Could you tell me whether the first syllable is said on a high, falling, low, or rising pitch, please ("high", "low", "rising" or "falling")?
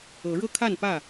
rising